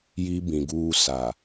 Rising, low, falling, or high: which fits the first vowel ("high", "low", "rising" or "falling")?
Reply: high